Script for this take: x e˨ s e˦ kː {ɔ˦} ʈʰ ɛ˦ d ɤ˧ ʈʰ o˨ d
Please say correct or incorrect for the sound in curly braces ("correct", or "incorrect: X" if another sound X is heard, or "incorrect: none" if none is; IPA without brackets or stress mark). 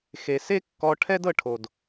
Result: incorrect: ɔ˧